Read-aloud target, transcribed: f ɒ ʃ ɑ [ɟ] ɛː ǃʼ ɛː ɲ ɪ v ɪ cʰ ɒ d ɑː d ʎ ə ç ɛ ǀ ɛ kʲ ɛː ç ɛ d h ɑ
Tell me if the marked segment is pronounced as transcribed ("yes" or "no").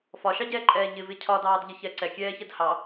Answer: yes